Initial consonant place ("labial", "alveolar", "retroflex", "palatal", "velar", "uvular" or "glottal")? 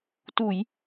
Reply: alveolar